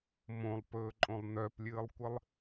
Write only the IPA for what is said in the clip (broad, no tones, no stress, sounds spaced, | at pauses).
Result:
m õ lˠ p ɵː ǃʼ õ lˠ n œ p lʲ ɨː lˠ kʷ ɨ lˠ